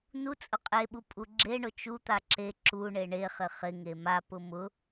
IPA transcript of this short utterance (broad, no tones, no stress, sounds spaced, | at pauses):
n u t͡sʼ ʊ qʼ e ɓ u pʼ u ɡ͡ǁ e ɳ ʊ t͡ʃ u t̪ a ǁ e ǁ u ɳ e ɳ e χ ɪ χ ɪ ŋ e m a p ʊ m ʊ